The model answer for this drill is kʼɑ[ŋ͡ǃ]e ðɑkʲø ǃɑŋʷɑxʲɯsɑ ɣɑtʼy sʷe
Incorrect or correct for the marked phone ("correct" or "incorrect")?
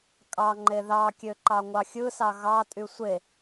correct